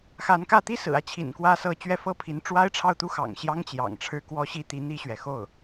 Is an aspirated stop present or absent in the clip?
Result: present